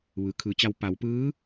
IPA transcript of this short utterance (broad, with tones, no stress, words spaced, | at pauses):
ʋɯː˩kʰɯː˩˧t͡ɕa˧w pa˩˧wpɯː˧˥